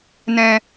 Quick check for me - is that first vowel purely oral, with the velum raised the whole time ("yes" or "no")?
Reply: no